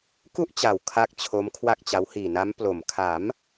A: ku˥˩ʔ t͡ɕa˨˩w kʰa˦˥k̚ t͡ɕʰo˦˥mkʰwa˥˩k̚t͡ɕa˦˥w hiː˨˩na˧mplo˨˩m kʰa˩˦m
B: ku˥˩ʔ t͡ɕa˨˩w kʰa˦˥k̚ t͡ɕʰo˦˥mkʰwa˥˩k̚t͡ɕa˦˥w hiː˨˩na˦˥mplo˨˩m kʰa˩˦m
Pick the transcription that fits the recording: B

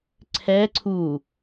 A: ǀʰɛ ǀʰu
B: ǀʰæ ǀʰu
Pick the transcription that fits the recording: A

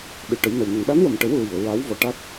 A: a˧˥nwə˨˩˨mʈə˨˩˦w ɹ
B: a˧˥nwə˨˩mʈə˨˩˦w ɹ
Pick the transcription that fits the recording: B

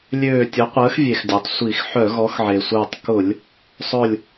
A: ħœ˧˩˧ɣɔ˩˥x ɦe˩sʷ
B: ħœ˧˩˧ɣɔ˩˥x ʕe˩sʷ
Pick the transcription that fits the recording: B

